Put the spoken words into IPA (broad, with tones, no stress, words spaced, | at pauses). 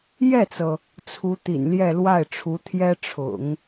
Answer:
jɛ˥˩t͡sɤ˩ | t͡sʰu˧˥ t̪ḭ˨˩nljɛ˥˧ lwa˥˩ɪ̯ʈ͡ʂʰu˧˥ t̪ʰjɛ˥ʈ͡ʂʰʊ̰˨˩˦ŋ